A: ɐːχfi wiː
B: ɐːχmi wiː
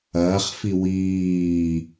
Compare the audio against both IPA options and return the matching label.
A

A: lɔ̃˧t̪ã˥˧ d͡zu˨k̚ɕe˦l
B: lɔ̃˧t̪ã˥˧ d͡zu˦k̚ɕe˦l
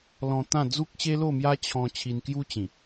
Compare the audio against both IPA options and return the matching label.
B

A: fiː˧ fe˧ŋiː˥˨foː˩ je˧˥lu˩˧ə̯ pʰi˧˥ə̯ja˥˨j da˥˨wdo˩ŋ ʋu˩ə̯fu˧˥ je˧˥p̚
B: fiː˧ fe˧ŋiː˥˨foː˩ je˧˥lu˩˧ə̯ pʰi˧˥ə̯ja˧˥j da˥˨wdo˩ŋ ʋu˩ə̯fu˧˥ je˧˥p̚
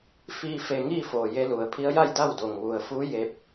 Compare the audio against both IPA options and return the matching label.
A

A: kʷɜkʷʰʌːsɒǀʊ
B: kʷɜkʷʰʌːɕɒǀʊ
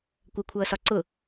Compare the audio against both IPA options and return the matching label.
A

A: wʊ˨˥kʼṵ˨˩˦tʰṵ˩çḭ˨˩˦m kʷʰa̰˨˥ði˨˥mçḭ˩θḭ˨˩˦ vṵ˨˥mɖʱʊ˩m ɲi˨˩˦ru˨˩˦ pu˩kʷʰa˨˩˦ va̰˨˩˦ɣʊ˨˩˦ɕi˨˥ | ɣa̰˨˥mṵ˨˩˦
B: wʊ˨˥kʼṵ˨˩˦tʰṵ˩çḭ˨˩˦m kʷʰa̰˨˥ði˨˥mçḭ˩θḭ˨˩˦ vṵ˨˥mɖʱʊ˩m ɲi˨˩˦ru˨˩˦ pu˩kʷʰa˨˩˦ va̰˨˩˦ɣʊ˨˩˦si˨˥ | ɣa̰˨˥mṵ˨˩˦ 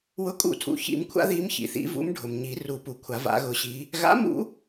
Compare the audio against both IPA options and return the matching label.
A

